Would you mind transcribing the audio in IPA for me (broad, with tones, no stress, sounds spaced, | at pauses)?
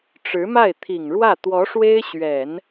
ʈ͡ʂ ɻ̩˧˥ m a˥˩ ɪ̯ t̪ʰ i˨˩ ŋ ɻ w ä˥˩ t̪ w ɔ˧˥ ʂ w e˥ ɪ̯ ɕ ɥ ɛ˨˩˦ n